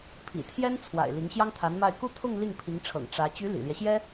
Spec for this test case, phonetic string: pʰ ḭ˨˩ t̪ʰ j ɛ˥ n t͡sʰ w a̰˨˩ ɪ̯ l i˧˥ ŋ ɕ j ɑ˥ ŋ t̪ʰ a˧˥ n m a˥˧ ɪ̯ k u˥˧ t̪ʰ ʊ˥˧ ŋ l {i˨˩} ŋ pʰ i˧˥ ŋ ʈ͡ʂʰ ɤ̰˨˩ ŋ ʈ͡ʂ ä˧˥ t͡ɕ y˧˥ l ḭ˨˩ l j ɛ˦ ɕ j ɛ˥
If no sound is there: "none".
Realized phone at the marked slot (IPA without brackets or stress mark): i˥˩